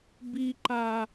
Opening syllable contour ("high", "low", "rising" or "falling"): high